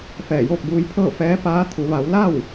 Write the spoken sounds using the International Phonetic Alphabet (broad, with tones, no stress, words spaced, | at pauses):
fɛː˧˩joː˥˨k̚buː˧jpʰɤː˥˨ fɛː˧˥ paː˧˥t̪ʰu˩˧ ʋa˩˧wla˥˨w